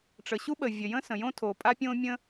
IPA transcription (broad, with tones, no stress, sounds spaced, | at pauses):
ʈ͡ʂ ə˩ ɕ u˥ ɓ ə˩ vʲ ə˩ j ə̃˥ s ə̃˩ j õ˥ tʰ o˩ pʼ a˥ pʲ õ˥ mʲ ə̃˥